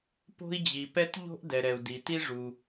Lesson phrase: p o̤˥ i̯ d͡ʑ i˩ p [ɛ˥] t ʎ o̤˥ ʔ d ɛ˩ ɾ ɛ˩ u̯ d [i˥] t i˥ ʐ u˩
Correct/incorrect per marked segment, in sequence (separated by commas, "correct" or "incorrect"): correct, incorrect